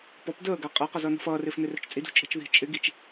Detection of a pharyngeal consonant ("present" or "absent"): absent